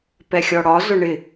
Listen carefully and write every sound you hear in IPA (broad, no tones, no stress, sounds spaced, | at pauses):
p ɛ xʲ ɔ ɽ ɒ z ʊ ɳ ɪ